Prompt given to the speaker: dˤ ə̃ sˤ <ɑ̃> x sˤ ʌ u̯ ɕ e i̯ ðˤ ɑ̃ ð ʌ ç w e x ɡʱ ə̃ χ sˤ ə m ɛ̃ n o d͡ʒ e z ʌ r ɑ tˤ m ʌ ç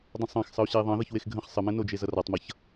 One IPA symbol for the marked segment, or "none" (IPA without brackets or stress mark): ɑ̃